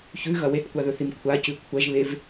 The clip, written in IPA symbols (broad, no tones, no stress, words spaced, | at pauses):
çʉɣɐ wetkʷaðɵθim kʷʰacʉ kʷʰɐʒβev